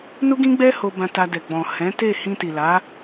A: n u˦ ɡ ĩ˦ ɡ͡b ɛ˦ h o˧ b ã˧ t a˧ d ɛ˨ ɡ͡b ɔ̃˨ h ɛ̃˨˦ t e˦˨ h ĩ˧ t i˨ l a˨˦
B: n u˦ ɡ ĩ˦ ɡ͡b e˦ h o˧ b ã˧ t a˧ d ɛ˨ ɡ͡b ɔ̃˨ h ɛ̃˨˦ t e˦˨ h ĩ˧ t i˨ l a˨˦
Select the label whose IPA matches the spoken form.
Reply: A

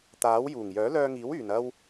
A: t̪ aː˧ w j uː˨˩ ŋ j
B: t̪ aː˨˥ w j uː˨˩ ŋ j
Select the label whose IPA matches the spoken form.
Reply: B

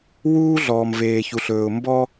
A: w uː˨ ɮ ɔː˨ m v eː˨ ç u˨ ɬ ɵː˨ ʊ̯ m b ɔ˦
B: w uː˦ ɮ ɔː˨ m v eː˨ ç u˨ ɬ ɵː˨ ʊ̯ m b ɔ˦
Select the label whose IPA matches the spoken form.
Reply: B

